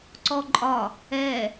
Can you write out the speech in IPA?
ǀ ɔ ǃʼ ɒ | ɛ

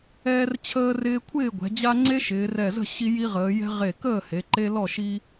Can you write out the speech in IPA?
ɛː˦ r t͡ɕʰ əː˦ r ɪː˦ kʷʰ ɪː˥˨ ɡʷ ɛ̤˩˧ d͡ʑ a˦ ŋ͡ǀ e˦ ʃ ɪː˩˧ r ɛ˧˩ z ə̤˥˨ ɕ i˦ j i˦ ʁ əː˩˧ j ɛ̤˦ ʁ e˧˩ k əː˥˨ h e˩˧ ǃ e˦ l ɔ˥˨ ʃ i˦

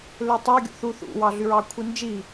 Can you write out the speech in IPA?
l ø tˤ ø ɡʲ ṵ θ u θ ṵ w ɑ ɮ y ɹ ɑ kʷʰ i n d͡ʒ i

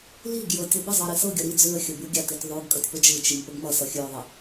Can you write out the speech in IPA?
l i ɡ j ɤ tʲ ʌ b ə zˤ ɤ ɾ i s ɤ ɡʲ ʌ ɾ i d͡z ʉ ə̯ xʲ ə b ʉ ɡʲ a t i t ðˤ ʉ ɡ kʼ ʌ tʲ p ə d͡ʒ ɯ t͡ʃ i m p ə ɡ m ʌ s ʌ xʲ ʉ ʊ̯ ðˤ ə

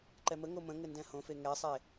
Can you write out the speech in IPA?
ǃ ɛ m ə ŋ o m ə̃ ŋ ɘ n d ɛ̃ h õ f e ŋ ɛ sˤ e

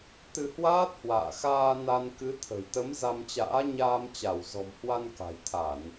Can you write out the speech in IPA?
t̪ ɨ˧ h w aː˦˥ t̚ h w a̰ː˧˨ x aː˧ n a˧ n k ɨ˨˦ t̪ʰ ə̤˨˩ j t̪ ə˨˦ m z a˧ m t͡ɕ a̰ː˧˥ ɲ aː˧ m t͡ɕ a˧˩ w z ɔ̤˨˩ m h w a˧ n k a̤˨˩ j t̪ʰ a˧˩˨ n

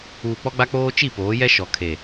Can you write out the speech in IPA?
uː˨ k͡p ɔ˦ ɡ͡b a˦ k͡p oː˦ t͡ʃ i˦˨ p oː˨˦ j ɛ˦ ʃ ɔ˨ kʰ e˨

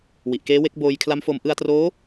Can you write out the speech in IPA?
w i˨˩ ʔ k eː˦˥ w e˦˥ k̚ b oː˧ j kʰ l a˦˥ m f o˧ m ʔ ɯ˧ a̯ t r oː˦˥

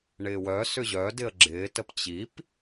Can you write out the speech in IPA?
ɳ ɪː w œ s ʏ ʑ œ d ɪ ə̯ ɡ͡ǁ ɪː t ə p t͡ɕ i p

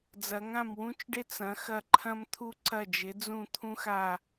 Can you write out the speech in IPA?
d͡z ɐ˩˧ ŋ ã˧˩ m w ũ˦ t͡ʃ ɖ ɪ˦ t͡s ɐ̃˩˧ x ɐ˧˩ ǃʰ ɐ̃˦ m t̪ʰ u˦ ǀ ɐ˧˩ d͡ʒ ɪ˩˧ d͡z ũ˧˩ t̪ʰ ũ˦ x a˧˩

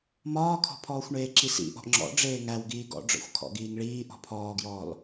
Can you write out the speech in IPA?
m ɒː kʰ ɔ̤ pʰ ɔː xʷ ɳ eː ǁ i s ḭ ʔ ɔ̤ ʔ ŋ͡ǁ ɔ̰ ɖ͡ʐ eː ŋ æ w ɡ iː ɡ ɔ̰ ɖ͡ʐ ɔ̰ xʷ kʰ ɔ̰ ɡ iː ŋ ɭ iː ʔ ɔ̤ pʰ ɔː ɡ j ɔː l

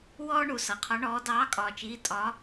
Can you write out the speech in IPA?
w ɔː˧ ɳ u˩ s ʌ˩ qʰ ɒ˨˥ ɳ ɔː˨˥ d ɑː˨˥ kʼ ɒː˩ t͡ʃ iː˩˧˩ tʼ ɒ˨˥

